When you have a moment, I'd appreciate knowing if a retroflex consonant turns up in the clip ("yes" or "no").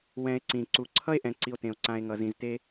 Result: no